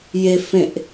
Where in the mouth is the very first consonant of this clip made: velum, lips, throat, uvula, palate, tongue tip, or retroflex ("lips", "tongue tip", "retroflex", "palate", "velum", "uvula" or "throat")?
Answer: palate